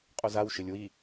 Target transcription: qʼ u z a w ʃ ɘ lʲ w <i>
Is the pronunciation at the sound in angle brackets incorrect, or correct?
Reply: correct